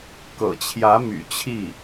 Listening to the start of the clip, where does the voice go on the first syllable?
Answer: low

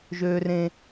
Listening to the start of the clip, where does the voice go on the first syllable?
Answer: high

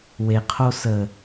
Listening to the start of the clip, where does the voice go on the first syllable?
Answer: low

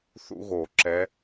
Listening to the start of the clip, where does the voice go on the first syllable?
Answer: high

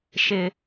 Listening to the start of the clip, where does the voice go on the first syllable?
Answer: high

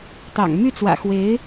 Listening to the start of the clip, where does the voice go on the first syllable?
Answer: low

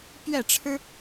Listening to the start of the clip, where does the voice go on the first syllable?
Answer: falling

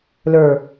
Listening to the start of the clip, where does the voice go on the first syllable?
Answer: low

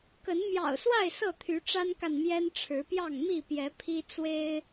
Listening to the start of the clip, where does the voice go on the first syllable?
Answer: rising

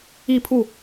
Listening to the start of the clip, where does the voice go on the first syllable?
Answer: falling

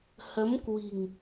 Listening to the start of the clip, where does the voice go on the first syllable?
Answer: rising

